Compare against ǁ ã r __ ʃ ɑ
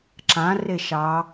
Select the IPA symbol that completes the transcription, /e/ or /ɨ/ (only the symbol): e